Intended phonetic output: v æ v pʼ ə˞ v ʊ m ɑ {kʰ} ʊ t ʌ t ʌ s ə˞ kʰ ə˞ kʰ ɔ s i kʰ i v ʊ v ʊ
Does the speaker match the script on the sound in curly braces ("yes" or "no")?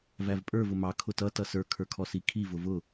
yes